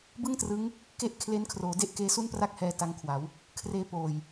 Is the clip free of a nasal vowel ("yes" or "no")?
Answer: yes